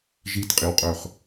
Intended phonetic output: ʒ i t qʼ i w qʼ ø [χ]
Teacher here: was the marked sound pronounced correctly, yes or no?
yes